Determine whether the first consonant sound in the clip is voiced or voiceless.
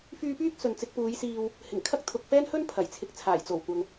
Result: voiceless